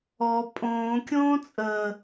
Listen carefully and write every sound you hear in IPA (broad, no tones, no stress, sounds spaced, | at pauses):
ɔ pʼ õː kʲ õː t͡sʼ əː